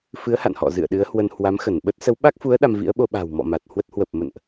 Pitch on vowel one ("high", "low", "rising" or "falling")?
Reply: rising